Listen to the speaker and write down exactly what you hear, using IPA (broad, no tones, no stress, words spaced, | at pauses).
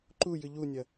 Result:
ǃujɨ ʎunʲɐ